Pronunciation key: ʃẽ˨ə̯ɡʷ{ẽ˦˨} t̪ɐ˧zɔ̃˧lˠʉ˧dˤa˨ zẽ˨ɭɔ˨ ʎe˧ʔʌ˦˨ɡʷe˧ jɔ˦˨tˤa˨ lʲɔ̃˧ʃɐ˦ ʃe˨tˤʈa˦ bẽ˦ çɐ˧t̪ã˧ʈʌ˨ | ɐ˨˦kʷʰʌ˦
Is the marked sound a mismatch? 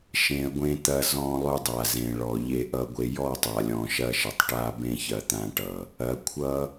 yes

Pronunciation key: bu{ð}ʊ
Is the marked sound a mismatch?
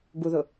no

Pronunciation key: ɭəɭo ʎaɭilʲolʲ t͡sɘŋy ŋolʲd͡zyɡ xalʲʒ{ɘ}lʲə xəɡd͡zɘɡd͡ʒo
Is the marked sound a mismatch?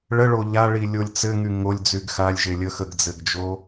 yes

